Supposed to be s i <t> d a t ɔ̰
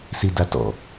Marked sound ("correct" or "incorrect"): incorrect